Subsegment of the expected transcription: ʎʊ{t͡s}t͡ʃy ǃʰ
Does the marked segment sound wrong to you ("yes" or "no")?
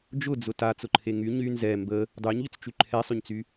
no